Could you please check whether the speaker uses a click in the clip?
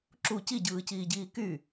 yes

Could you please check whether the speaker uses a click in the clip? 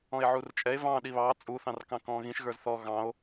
no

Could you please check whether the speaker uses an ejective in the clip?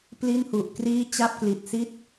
no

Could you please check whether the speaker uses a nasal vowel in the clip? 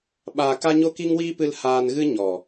no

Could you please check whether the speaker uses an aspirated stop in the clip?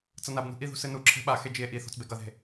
yes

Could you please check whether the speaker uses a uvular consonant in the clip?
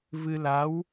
no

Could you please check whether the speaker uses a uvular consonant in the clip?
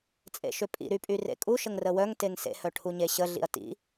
no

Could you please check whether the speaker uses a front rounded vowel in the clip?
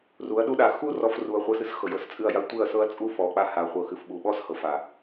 no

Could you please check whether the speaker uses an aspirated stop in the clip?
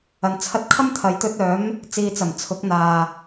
yes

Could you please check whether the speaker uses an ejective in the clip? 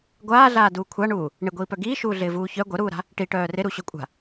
yes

